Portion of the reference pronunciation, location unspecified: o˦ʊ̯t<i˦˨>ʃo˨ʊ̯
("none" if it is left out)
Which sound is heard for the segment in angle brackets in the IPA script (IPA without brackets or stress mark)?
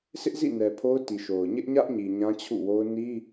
i˨